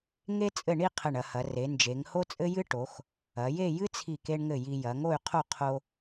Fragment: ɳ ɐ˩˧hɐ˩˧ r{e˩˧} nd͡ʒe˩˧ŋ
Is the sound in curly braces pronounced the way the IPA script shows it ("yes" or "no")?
yes